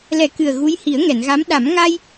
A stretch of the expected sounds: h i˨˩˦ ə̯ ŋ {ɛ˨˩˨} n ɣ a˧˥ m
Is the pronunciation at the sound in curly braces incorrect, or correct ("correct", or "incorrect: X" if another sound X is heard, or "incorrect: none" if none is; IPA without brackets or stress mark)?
correct